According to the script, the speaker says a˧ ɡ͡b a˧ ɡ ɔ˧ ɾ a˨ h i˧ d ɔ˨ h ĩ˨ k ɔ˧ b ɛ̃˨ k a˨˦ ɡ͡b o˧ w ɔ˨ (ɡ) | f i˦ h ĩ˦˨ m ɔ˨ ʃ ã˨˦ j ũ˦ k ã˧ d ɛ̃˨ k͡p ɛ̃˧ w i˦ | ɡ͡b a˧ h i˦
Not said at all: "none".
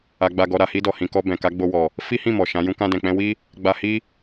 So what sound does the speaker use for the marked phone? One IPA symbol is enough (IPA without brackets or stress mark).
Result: none